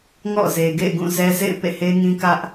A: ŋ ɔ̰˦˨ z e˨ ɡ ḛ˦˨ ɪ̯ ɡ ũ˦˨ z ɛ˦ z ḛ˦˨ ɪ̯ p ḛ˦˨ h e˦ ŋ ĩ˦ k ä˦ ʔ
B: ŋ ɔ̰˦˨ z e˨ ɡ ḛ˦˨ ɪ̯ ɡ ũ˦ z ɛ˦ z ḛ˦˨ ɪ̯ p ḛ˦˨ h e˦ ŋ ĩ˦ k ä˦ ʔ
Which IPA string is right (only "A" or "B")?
A